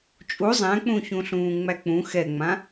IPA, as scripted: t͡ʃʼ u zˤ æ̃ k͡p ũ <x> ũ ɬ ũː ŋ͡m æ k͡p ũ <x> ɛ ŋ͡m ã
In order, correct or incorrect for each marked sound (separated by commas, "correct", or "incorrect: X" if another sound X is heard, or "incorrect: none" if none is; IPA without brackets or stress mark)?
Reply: incorrect: ç, correct